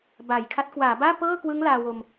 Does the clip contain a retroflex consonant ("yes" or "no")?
no